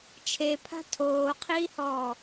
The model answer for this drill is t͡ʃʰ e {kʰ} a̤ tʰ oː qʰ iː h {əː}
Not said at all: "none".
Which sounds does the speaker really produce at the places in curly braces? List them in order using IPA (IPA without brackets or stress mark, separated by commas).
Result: pʰ, ɔː